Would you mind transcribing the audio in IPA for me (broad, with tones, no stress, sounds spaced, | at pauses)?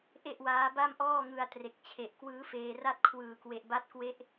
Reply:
ʔ e˥˩ ʔ w aː˦˥ b a˥˩ m ʔ ɔː˥˩ ŋ ɯ˧ a̯ t r e˨˩ k̚ t͡ɕʰ e˨˩ ʔ k w ɯː˦˥ f eː˧ r a˥˩ t̚ kʰ w ɯː˨˩ k w e˨˩ ʔ b a˦˥ t̚ k w e˦˥ ʔ